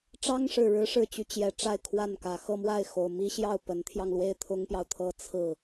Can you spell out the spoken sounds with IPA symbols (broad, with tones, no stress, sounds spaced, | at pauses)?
ʈ͡ʂ ɑ˥ ŋ ʂ ɻ̩˨˩ ɻ ɻ̩˧˥ ʂ ɻ̩˨˩ t͡ɕ y˧˥ t͡ɕ j ɛ˨˩ ʈ͡ʂ a˥˧ ɪ̯ kʰ w a˥˩ n k ä˨˩ x ɤ˥˧ m w a˥˩ ɪ̯ x o˨˩ ʊ̯ m i˥ ɕ j ɑ˥˩ ʊ̯ p ə˧˥ n t̪ʰ j ɑ˧ ŋ l w e˥˩ ɪ̯ t̪ʰ ʊ˥ ŋ p j ɑ˨ ʊ̯ t̪ʰ ɤ˥ t͡sʰ ɹ̩˥˩